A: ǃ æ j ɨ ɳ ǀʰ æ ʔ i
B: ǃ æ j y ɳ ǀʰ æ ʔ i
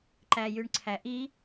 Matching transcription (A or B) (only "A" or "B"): B